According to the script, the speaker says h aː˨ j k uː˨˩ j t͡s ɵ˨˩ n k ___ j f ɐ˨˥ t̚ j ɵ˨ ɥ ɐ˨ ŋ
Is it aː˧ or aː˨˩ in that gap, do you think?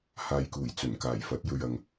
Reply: aː˨˩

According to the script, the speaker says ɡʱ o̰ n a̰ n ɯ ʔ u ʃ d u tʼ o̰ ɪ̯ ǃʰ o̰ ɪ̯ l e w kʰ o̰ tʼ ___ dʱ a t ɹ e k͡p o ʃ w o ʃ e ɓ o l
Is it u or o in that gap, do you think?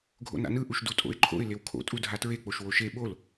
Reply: u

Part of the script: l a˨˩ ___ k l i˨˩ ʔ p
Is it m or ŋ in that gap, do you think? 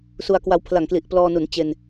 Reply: ŋ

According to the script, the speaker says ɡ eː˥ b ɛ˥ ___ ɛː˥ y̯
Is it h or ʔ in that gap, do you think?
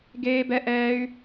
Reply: ʔ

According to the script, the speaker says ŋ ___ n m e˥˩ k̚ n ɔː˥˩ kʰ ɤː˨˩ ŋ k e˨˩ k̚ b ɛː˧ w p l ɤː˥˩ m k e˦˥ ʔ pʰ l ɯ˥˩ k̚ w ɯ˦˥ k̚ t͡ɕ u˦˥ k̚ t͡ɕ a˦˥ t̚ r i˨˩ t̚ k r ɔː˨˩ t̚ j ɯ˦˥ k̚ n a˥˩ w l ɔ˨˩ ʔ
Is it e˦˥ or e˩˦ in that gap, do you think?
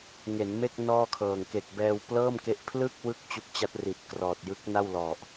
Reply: e˩˦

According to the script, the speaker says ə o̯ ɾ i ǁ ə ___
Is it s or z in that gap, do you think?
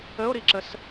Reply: s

